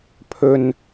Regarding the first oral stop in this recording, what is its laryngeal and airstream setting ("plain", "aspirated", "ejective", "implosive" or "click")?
aspirated